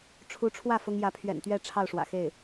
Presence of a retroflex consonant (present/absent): present